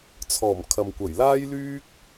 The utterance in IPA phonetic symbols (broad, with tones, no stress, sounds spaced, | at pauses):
t͡sʰ ɔː˨˩ m kʰ ɐ˨ m kʷ ɐ˨˩ j l aː˥ j l yː˥ k̚